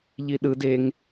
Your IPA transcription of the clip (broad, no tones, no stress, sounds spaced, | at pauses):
ʎ i ɗ ɯ d e ŋ